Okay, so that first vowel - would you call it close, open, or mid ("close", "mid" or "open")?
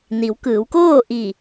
close